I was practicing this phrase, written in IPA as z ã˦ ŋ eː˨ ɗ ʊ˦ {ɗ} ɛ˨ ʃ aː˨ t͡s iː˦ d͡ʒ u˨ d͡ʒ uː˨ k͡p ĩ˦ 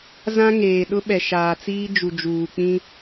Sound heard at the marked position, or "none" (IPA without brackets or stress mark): ɓ